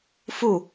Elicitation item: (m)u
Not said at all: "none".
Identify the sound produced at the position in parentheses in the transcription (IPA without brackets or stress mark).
f